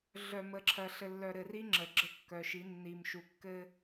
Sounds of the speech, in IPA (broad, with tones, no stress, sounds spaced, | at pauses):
ɮ œ˨ m ə˨ ǁʰ ɜ˨ ɬ ɘ˨ lː œ˨ ɾ ɘ˨ r i˦ ŋ͡ǁ ə˨ ɡ͡ǁ ə˦ kː œ˨ ʃ i˨˦ nː i˨ m ʃ u˨ kː ɘ˦